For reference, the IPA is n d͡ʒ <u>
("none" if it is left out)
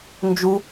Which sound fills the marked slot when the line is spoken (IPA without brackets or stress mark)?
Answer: u